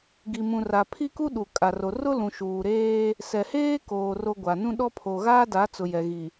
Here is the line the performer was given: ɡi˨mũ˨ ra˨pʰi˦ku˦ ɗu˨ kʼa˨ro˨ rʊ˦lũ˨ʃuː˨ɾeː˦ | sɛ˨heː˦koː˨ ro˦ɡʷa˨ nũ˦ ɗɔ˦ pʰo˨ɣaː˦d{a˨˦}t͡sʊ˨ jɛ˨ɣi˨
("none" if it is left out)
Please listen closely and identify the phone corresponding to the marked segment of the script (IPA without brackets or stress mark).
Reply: a˨˦